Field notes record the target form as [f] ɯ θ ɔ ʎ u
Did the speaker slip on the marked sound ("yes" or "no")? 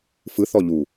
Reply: no